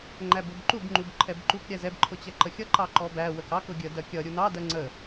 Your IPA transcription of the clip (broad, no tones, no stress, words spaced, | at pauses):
ŋ͡ǃæbʊbǃub ŋ͡ǃubǃʰɛbǃuk ɾʲæzɛb ǃʰʊt͡ɕɛǃəxʲʌ ǃɑǃɔbæ wəkɑk ʊɡʲə dɜkʲʌ ɾʲunɑ dɜŋ͡ǀə